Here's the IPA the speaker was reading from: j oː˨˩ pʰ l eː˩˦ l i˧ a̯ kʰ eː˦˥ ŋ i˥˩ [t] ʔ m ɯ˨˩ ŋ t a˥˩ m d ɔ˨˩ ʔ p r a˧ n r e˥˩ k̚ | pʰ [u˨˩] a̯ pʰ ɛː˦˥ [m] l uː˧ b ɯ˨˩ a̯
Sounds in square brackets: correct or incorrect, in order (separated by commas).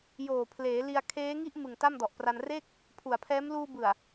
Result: incorrect, correct, correct